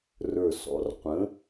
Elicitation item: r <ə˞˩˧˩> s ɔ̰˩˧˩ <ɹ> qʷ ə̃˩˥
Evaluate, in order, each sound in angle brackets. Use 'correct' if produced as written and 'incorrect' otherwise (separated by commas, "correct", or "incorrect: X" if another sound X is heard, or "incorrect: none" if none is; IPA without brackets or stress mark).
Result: incorrect: ə˞˧˩, incorrect: r